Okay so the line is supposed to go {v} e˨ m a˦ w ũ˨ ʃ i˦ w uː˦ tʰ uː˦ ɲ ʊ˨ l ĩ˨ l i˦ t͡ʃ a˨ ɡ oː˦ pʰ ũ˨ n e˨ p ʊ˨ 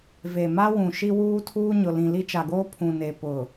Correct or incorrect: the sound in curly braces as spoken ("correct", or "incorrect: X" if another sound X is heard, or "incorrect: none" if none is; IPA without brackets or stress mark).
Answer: correct